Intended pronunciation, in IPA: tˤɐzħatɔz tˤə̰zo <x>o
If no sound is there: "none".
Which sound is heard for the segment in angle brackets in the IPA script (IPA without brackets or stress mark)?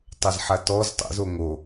ŋ